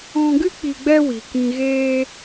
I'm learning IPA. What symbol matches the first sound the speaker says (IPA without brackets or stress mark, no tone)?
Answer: ɔ̃